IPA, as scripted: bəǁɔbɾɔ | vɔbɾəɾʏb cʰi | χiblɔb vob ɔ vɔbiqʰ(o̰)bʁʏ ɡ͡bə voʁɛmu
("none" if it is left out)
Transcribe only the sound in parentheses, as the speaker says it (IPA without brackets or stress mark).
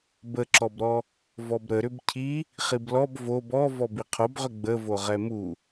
o